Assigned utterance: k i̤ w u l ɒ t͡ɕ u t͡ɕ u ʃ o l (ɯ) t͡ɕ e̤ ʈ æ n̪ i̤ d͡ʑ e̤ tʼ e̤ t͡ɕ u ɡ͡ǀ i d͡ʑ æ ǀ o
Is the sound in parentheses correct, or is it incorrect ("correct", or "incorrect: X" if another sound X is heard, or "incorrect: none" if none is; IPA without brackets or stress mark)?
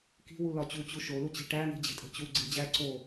incorrect: u